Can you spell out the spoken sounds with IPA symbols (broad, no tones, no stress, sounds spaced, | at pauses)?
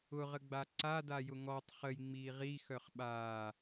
ʊ ʁ ə ɡ͡b a ǀ a d a j ʊ ŋ ɔ tˤ χ ə j ŋ͡m iː ʁ i x œ χ ɓ aː